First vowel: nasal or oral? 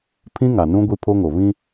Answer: nasal